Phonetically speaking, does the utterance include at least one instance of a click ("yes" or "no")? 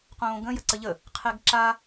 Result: yes